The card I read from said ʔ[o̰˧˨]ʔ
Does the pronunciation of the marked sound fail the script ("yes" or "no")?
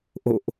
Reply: no